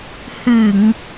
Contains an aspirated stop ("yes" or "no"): no